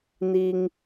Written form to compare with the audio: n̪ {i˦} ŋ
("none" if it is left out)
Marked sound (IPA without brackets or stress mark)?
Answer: i˦